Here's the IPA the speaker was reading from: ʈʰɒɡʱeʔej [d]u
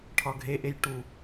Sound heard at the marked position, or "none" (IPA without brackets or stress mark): ʈ